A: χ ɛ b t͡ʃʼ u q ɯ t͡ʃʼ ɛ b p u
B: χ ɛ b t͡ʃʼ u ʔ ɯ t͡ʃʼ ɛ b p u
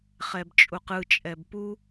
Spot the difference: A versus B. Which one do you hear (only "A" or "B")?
A